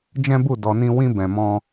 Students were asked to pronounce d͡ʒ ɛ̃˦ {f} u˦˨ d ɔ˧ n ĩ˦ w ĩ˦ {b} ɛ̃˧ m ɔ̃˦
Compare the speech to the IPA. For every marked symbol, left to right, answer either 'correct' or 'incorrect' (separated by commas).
incorrect, correct